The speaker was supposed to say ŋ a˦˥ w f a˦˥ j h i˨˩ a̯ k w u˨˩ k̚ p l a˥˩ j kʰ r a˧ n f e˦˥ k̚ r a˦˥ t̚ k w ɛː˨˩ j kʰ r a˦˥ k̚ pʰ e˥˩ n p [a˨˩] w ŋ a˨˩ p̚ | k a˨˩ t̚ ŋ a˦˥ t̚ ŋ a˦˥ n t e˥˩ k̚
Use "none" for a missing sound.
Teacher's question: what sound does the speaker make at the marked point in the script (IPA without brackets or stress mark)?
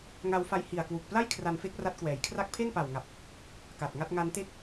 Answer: a˨˩